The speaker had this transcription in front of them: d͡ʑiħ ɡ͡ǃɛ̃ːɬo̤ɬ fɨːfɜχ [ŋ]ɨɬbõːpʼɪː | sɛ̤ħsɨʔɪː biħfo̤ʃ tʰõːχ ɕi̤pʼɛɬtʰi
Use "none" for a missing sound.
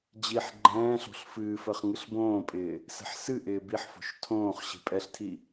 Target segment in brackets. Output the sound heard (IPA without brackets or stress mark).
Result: ŋ